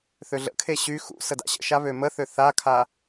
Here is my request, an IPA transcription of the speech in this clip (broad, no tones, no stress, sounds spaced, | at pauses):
θ ø ɮ ə̰ kʰ e ɕ y x ṵ s ə d a̰ ɕ ə̰ ʃ a β ø m ə θ ø θ a kʰ a